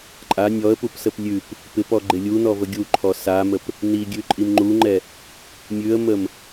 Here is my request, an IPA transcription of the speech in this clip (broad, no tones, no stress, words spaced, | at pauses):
ǃʼa nʲɔə̯pupsəp lʲʉp | pɪpɔɡ͡ǃɪ lʲunɔvə ɡʲuǃʰɔ saməp | niɡʲʉǃʼim ŋ͡ǃuŋ͡ǃɛ | mʲʉə̯məm